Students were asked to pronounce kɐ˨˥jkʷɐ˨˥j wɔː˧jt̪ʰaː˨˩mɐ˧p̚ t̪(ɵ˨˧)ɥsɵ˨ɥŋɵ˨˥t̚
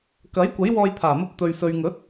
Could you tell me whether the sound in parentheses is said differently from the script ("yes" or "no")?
yes